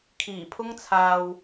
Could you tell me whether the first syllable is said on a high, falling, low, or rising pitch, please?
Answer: low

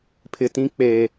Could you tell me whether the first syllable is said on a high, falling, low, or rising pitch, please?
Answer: low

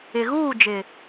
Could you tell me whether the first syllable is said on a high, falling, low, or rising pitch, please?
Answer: low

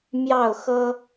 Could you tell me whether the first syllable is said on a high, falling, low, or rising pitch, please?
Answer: falling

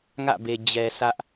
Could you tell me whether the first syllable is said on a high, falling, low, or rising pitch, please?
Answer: falling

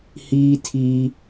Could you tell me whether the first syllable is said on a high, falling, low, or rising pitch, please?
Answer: high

